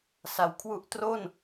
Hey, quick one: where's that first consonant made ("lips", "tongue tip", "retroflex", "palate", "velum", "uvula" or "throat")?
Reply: tongue tip